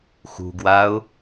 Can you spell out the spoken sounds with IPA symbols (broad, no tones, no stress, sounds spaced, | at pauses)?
x ṳ ɡ w a ʊ̯